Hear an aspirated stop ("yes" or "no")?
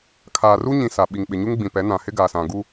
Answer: yes